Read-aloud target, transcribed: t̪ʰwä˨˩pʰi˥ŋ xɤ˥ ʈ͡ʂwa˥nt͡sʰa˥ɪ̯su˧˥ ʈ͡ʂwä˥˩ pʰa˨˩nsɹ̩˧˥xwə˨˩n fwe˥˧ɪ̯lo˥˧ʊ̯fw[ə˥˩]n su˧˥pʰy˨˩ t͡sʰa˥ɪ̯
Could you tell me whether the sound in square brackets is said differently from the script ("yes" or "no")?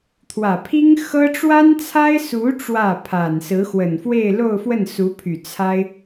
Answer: no